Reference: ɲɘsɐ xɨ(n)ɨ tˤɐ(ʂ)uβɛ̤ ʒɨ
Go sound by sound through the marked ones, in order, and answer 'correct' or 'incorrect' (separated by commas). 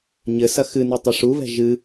correct, correct